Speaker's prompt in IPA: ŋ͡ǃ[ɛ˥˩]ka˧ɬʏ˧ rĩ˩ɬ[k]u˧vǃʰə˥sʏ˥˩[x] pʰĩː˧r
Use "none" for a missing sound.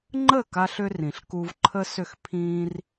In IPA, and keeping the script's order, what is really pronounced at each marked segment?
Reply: ə˥˩, k, x

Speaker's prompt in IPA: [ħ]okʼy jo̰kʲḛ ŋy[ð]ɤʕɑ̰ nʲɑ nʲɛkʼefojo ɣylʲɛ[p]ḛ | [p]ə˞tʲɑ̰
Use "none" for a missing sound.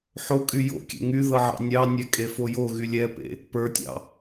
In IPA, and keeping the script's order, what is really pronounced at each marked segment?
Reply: ħ, ð, p, p

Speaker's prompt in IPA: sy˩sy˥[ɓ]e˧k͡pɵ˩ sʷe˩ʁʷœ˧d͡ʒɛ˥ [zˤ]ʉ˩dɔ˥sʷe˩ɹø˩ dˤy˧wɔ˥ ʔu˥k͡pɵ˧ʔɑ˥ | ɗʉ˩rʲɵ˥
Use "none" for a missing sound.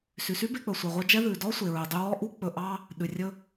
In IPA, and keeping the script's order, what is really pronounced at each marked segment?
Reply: b, ð

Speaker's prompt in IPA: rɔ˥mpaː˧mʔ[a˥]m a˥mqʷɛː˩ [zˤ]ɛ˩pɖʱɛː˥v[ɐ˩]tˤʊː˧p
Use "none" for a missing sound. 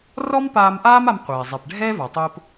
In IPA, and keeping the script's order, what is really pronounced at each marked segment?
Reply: aː˥, zˤ, a˩

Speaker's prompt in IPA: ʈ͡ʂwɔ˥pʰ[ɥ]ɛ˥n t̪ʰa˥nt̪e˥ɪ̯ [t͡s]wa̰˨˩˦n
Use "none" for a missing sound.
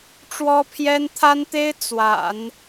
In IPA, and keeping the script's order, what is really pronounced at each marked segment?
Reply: j, t͡s

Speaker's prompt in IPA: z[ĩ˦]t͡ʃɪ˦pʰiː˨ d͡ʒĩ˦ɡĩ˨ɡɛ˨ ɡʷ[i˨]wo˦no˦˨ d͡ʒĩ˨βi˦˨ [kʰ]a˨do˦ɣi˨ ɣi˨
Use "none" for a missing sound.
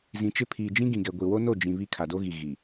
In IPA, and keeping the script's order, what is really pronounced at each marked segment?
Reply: ĩ˨, i˨, kʰ

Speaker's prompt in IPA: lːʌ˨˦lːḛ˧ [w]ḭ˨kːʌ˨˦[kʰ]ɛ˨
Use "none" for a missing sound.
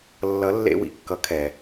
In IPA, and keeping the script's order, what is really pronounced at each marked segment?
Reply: w, kʰ

